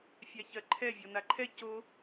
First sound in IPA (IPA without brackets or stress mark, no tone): fʲ